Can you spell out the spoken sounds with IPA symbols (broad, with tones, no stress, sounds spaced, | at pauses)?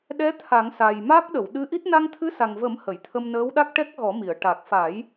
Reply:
ɗ ɛ˧˥ t̪ʰ a˨˩˦ ŋ s a˨˩ j m a˦˥ k̚ ɗ ə˨˩˨ w ɗ ɨ˧˥ ʔ i˦˥ t̚ n a˧ ŋ t̪ʰ ɨ˧˥ s a˨˩ ŋ v ə˨˩˦ m h ə˨˩˨ j t̪ʰ ə˧ m n əː˧˥ w ɗ a˦˥ k̚ ʈ ɛ˦˥ k̚ ɣ ɔ˨˩˦ m i˨˩˨ ə̯ ʈ a˨˩ k̚ f a˨˩˦ j